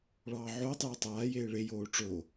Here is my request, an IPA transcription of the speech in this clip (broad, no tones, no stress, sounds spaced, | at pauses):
ɭ ɑː ʕ oː tˤ j o tˤ aː j eː ɭ e j oː ʈ͡ʂ o